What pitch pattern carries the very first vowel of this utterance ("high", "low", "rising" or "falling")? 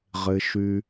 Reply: low